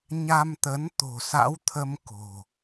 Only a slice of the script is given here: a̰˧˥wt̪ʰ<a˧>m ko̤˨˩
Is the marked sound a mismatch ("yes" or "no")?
yes